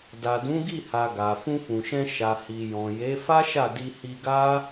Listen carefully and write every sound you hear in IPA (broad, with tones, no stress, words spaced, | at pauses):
da˨dũ˨˦ɡi˦˨ha˨ ɡa˨ fũ˧fũ˨ʃɛ̃˧ ʃa˨hi˨ jɔ̃˨je˨˦ fa˦ʃa˦˨di˧ hi˧ɡa˦